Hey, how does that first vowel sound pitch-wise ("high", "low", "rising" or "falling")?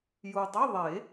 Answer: low